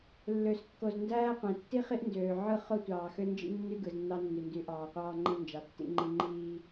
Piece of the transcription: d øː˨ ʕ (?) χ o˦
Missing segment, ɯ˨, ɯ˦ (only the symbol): ɯ˦